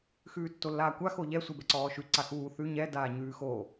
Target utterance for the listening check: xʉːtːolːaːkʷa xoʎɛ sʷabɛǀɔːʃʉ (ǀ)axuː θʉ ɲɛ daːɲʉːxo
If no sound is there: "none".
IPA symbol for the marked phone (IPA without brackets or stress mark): ǀ